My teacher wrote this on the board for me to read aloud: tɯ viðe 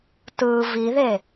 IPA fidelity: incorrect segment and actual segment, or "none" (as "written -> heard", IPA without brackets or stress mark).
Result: none